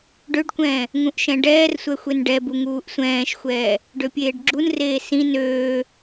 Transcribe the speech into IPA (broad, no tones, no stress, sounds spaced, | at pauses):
ɖ ø ɖ kʷ ɛ̃ː | ŋ ũ ʔ ʃ ɛ̃ ɖ ɛː r sʷ ɛ xʷ e n ɖ ɛ b u ŋ uː ʔ sʷ ɛ̃ː ʃ xʷ ɛː | ɖ ø pʲ eː ɖ ɡ͡ǁ u n r eː s ĩ n øː